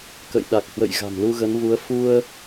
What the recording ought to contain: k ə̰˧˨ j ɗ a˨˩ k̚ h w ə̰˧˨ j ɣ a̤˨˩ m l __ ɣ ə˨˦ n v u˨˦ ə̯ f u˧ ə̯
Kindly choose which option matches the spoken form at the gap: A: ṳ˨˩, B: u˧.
B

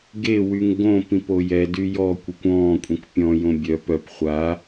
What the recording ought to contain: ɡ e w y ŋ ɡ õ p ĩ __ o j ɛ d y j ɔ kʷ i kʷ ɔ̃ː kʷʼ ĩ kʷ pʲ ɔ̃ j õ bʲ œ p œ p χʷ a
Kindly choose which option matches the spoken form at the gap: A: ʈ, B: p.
B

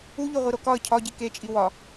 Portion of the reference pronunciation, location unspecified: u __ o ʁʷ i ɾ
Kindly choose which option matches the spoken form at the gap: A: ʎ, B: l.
A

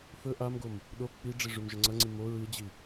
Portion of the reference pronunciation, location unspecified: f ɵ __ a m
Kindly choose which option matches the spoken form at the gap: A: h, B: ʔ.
B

